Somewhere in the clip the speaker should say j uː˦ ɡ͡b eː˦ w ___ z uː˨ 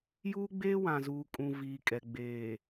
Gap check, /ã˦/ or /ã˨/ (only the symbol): ã˨